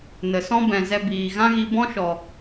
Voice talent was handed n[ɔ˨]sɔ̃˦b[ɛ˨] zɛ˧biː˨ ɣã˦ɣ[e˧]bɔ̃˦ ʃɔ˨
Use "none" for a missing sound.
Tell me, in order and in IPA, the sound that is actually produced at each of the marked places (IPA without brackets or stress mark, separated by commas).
ə˨, ɛ̃˨, i˧